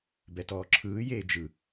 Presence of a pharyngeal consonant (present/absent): absent